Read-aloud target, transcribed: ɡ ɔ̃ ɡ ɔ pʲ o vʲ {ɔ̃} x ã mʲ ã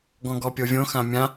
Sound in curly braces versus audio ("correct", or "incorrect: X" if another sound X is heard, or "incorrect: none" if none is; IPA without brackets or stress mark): incorrect: õ